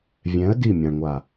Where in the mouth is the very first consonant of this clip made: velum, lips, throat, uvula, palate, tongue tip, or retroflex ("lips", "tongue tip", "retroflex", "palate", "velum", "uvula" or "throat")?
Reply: lips